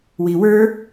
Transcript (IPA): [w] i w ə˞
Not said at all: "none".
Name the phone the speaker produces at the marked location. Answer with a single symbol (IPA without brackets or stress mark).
w